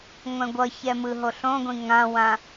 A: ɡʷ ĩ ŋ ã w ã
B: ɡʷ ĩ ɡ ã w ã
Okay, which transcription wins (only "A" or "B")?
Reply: A